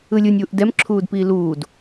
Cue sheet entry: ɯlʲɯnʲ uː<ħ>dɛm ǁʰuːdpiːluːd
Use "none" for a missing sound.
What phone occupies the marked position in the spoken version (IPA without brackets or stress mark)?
ʔ